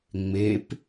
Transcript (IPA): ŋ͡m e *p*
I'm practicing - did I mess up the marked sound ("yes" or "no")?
no